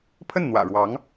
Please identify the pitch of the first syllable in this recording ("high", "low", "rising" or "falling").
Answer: falling